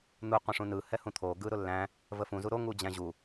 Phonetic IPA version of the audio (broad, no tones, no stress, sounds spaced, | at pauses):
n̪ u qʷ ɛ̃ ʂ ũ n ɯ h ɛ h ũ t̪ʰ o ɡ ɯ ɾ ʊ lː æ̃ | v ə f ũ z u ɾ o ŋ u d͡ʑ æ̃ ʑ u